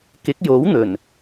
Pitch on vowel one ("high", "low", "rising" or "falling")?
rising